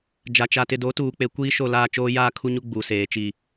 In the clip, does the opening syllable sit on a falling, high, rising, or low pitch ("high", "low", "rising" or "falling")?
low